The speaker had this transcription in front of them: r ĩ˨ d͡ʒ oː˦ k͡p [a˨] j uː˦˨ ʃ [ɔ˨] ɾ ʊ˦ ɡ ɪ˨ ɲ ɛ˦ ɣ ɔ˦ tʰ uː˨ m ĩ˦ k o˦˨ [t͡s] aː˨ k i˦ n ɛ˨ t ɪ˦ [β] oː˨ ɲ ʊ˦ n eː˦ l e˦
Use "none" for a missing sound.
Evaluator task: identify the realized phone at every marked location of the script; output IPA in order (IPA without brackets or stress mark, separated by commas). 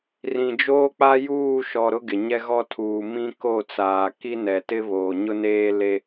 a˦, ɔ˨, t͡s, β